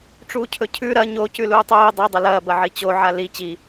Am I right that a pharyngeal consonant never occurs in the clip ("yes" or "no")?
no